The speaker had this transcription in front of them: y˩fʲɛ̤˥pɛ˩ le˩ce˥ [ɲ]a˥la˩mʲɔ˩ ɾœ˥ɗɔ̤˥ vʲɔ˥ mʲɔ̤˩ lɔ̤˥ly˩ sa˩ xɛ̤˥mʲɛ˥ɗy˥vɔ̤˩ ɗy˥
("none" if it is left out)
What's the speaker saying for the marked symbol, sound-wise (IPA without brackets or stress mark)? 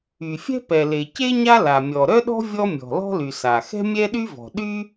ɲ